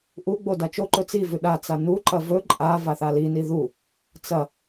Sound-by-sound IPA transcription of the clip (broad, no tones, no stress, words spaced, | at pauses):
ʔuɡ͡bo dat͡ʃoǃɵ t͡sivʉ ɗat͡sa nuǃɐ vɵ ǃʼa vaθalini ðu | t͡sɐ